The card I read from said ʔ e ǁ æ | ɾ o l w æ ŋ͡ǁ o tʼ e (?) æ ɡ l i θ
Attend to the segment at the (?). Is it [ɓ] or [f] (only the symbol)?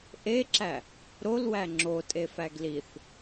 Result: f